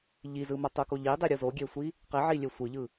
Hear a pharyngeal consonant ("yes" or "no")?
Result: yes